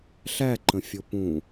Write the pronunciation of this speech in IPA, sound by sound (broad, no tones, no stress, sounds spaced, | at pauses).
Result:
ɬ æ ǃ ə̃ fʲ o p ũ